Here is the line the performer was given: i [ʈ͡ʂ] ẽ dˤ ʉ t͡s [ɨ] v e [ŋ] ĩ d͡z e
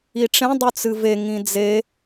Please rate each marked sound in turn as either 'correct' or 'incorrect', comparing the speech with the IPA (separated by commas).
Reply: correct, correct, correct